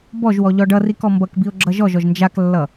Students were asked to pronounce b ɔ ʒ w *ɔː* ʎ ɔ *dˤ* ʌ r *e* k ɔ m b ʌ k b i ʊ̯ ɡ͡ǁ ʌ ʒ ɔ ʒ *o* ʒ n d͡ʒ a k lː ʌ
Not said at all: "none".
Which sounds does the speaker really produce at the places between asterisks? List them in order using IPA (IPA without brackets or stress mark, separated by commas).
ɔ, ɖ, i, ɔ